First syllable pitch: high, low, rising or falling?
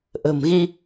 low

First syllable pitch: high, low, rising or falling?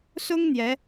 high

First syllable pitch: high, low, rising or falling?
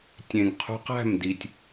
low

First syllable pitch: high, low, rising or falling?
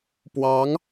rising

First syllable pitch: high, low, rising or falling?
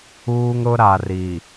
high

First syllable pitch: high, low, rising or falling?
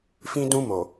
high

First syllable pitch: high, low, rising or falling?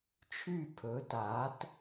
falling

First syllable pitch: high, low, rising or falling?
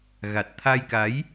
low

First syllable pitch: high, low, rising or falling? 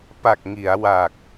low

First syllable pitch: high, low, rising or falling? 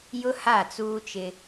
high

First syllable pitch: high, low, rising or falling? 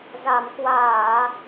low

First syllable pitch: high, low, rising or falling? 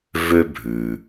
high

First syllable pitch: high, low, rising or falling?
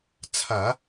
low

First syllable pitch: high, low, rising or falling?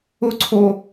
high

